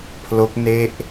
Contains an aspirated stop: yes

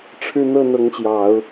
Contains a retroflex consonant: yes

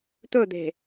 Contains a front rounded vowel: no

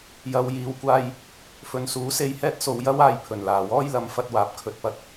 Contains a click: no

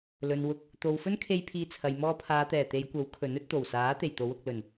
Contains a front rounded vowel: no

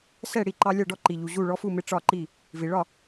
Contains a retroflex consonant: yes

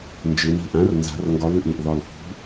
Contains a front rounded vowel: yes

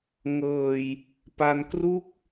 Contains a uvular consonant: no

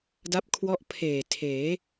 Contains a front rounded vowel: no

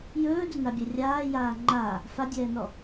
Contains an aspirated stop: no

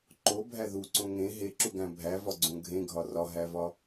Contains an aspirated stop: no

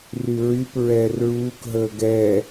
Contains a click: no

